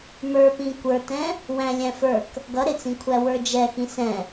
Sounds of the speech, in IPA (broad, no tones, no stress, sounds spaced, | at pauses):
m ə˞ p ĩ kʷ ə˞ t ɛ̃ | w æ̃ lʲ æ̃ f ə˞ k | ɡ ʌ ɾ ɪ t͡s ĩ kʷʰ æ w ə˞ d͡ʒ ɛ x ĩ s ɛ̃